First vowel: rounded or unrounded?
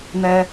unrounded